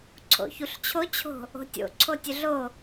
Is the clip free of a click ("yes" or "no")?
no